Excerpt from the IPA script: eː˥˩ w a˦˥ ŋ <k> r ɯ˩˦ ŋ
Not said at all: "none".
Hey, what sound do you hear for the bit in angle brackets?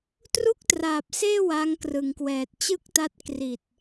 k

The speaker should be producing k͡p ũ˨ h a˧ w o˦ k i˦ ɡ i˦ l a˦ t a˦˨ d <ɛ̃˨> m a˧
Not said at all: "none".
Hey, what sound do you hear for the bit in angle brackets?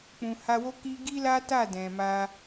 ɛ̃˨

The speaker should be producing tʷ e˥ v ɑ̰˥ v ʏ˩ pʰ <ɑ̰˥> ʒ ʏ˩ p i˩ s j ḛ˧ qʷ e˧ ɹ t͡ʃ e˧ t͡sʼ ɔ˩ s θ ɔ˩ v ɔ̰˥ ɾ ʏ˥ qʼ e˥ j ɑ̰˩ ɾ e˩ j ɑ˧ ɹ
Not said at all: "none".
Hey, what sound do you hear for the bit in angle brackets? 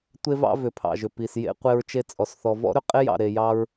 ɑ̰˩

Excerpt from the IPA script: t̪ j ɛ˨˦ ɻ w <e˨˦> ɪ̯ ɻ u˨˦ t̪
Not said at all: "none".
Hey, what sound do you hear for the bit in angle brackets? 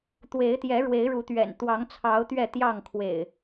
e˨˦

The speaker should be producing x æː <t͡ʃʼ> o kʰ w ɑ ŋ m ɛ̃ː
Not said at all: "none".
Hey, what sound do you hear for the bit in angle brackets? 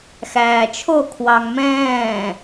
t͡ʃʰ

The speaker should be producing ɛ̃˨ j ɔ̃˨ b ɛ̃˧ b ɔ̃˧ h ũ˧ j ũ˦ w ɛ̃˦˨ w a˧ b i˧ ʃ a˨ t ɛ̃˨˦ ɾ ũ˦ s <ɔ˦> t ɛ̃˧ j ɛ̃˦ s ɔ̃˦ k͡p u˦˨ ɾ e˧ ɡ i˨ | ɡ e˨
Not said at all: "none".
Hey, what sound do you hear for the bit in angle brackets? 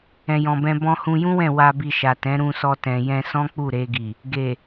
ɔ˦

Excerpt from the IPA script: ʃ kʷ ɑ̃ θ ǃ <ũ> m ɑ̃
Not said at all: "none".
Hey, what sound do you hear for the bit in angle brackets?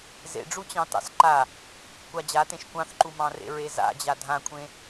u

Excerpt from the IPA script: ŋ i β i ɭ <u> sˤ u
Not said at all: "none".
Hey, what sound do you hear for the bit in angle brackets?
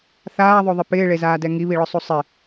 ʊ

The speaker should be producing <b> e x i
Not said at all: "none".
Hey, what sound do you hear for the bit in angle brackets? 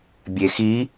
bʲ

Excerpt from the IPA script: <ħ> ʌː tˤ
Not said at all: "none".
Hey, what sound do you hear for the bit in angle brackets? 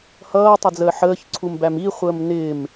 h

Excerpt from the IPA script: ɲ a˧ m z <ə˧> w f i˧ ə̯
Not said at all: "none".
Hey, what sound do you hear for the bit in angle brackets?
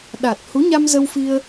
ə˧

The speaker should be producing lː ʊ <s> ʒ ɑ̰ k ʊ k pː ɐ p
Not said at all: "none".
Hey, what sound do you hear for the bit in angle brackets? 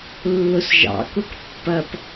s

